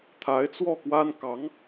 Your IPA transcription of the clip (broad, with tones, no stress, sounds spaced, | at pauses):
t̪ʰ a˧˥ ɪ̯ t͡s w ɔ˥˩ k w a˥ n k ɑ˧˥ ŋ